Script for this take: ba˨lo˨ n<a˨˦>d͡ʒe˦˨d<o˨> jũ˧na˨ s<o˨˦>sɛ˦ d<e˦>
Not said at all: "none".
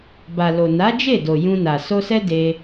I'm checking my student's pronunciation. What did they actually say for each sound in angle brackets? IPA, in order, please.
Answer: a˨˦, o˨, o˧, e˧

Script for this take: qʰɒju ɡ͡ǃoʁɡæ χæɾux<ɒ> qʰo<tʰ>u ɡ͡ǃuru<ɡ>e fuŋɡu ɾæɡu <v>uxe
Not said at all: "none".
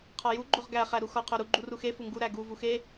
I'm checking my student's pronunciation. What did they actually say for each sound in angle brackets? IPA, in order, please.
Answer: ɒ, ɾ, x, v

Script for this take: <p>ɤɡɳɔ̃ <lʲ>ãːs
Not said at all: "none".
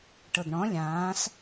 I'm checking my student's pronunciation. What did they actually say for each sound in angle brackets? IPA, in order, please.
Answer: ʈ, lʲ

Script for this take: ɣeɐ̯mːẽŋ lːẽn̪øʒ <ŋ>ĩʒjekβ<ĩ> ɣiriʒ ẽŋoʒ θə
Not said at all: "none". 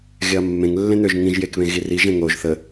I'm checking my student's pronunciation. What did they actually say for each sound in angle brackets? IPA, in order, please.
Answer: ŋ, ẽ

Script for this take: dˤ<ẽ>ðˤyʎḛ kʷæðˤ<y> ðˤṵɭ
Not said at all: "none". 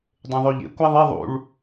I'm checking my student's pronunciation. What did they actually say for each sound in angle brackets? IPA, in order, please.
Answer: ẽ, e

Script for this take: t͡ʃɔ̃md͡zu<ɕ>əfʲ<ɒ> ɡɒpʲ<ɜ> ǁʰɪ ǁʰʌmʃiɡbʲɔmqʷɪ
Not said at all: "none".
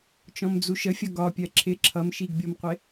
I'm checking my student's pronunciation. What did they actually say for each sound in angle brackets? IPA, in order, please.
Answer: ʃ, ʌ, ɜ

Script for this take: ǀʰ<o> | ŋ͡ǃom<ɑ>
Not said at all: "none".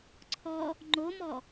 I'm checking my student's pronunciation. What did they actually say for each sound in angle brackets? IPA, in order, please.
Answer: ɔ, ɔ

